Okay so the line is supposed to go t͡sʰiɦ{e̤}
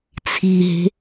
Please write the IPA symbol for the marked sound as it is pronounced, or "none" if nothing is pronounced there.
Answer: e̤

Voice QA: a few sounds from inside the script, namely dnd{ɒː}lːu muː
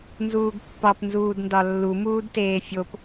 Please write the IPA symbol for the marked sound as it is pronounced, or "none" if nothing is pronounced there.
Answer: ɒ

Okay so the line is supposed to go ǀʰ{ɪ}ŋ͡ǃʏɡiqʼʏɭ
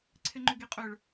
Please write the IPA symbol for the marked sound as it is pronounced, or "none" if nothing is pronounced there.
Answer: ɪ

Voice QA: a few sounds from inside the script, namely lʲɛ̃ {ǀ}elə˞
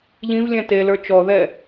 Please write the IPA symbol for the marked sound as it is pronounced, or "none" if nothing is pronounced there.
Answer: t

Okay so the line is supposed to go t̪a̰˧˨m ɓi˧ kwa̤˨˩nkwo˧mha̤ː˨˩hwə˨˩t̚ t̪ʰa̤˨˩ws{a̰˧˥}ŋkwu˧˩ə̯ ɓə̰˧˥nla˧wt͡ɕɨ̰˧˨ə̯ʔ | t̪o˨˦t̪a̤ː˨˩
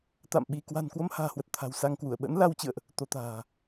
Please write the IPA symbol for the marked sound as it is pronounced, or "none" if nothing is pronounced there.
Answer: a˧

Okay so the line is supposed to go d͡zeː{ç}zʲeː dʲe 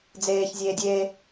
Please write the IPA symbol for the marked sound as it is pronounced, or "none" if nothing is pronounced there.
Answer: ç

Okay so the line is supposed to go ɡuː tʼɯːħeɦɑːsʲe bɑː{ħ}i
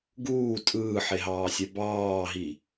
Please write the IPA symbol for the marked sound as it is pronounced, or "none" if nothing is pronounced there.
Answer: ɦ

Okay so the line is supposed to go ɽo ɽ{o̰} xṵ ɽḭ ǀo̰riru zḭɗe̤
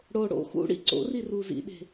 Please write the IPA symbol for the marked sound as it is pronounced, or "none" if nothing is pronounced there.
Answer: o̰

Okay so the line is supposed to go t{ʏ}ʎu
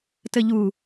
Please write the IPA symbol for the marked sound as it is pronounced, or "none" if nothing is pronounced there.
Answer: ə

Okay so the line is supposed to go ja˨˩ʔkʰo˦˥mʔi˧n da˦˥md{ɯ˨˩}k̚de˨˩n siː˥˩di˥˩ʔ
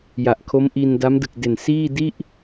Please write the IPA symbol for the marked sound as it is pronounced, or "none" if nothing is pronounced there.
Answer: ɯ˨˩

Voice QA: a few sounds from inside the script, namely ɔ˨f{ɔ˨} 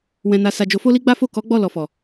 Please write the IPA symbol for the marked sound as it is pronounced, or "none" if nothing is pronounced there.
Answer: ɔ˨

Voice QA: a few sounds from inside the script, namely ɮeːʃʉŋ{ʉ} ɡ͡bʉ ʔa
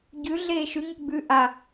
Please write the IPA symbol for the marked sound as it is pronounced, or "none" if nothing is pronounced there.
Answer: u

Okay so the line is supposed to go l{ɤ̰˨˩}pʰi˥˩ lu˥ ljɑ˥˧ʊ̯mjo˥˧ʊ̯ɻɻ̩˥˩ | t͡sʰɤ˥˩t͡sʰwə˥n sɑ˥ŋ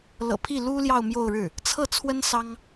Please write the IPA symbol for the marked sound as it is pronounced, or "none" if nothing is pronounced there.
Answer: ɤ̰˨˩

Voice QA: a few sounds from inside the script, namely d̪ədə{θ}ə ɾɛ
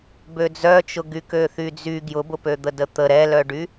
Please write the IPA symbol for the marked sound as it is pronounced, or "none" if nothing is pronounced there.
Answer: t̪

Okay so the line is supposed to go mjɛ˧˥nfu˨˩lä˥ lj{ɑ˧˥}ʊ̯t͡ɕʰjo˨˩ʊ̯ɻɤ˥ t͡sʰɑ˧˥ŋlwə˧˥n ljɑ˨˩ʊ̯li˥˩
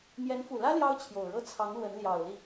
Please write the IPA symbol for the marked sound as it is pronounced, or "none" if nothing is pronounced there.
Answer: ɑ˥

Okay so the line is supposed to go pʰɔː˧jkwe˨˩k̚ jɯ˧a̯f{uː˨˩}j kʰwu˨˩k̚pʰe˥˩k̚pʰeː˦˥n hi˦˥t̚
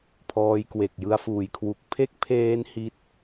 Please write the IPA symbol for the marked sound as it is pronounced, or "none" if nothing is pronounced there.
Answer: uː˨˩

